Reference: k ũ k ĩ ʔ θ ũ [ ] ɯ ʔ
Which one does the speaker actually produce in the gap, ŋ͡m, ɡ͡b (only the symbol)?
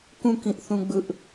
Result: ɡ͡b